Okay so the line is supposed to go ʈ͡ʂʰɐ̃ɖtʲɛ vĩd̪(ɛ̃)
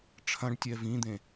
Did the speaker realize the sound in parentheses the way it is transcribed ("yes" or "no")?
no